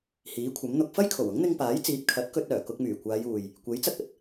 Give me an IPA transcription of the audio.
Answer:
h iː˨˥ kʷʰ ɐ˨˥ m n̪ ʊ˧ k̚ f ɐ˥ j kʰ o˨˩ w ʊ˨˥ ŋ n̪ ɪ˧ ŋ p aː˨˥ j t͡s iː˨˥ p̚ kʰ ɐ˨˥ t̚ k ɵ˧ t̚ œː˨˩ k ʊ˧ k̚ m yː˨˩ kʷ aː˨˧ j uː˨ j | kʷ e˨˥ j t͡s ɐ˧ k̚ ɐ˨˥ t̚

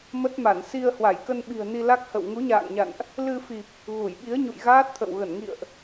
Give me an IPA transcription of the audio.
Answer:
m ə˦˥ t̚ m a˧˩ n s i˧ ə̯ h w a˧˩ j k ə˧ n ɓ i̤˨˩ ə̯ n i˧ l a˦˥ k̚ h ə̰˧˨ w ŋ u˨˦ ɲ a̰ː˧˨ ŋ ɲ a̰˧˨ n ʔ | l ɨ˧ f i˨˩ p̚ | ɣ u˧˩ j ɓ i˨˦ ə̯ ɲ ṵ˧˨ j ɣ aː˦˥ t̚ t̪ʰ ə̰˧˨ w ɣ ə˧˩ n ŋ ḭ˧˨ ə̯ ʔ

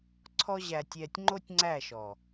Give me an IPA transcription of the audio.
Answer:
ǀʰ ɔ˦ ʑ æ˧ tʲ ɛː˧ tʲ ŋ͡ǃ o˦ tʲ ŋ͡ǀ æ˦˨ ʃ ɔ˨

